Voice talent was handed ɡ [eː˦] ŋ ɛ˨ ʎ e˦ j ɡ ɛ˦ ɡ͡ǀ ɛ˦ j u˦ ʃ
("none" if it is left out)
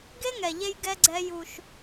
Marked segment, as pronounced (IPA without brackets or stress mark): e˦